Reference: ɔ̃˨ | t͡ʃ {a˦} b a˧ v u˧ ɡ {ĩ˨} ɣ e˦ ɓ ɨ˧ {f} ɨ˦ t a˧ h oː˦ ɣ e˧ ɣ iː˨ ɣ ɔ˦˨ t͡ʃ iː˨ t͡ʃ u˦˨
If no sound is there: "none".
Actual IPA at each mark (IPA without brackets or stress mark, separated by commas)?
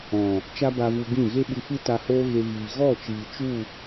a˦, ĩ˦˨, f